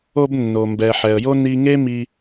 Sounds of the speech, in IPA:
o˧ b nː o˨ m b ɛ˨ ħ ɛ˨ ə̯ j o˦ n i˦ ŋ e˦ m i˧

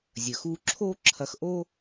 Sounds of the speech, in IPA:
zʲ əː˨ x uː˧ ǁʰ oː˦ ǁʰ ɐ˧ x ʔ o˦

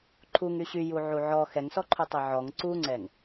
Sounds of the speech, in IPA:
ǃʰ u ŋ y ɕ y j u ʕ u ʕ ɔ x ɛ ŋ s ɔ ǃʰ u tˤ ɛ ʕ ɔ ŋ ǀ u ŋ͡ǀ ɛ ŋ

